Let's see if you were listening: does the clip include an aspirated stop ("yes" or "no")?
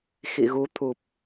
yes